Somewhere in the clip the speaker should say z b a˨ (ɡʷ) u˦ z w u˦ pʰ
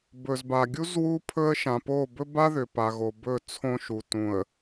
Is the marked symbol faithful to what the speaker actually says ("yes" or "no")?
no